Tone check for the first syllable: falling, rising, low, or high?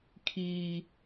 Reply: high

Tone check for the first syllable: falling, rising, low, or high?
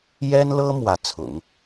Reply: high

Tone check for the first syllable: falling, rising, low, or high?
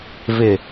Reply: low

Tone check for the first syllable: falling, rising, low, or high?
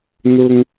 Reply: high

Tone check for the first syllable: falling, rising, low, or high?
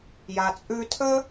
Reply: low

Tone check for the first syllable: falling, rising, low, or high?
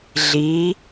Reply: rising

